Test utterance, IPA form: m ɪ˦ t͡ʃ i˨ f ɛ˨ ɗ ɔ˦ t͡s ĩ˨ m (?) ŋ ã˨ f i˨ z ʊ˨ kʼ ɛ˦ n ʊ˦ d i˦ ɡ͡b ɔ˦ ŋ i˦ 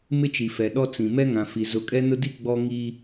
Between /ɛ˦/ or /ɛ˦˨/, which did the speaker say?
ɛ˦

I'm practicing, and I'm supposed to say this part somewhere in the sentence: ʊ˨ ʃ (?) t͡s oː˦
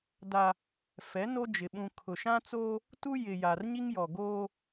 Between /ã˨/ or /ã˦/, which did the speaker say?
ã˦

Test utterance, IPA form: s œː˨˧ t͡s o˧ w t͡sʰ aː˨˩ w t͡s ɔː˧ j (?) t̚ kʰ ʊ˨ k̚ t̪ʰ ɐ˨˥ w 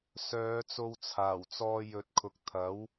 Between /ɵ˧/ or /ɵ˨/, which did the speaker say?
ɵ˨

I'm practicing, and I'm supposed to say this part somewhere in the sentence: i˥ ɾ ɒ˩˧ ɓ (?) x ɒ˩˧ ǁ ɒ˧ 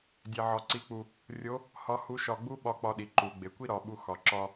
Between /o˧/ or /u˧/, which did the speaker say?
u˧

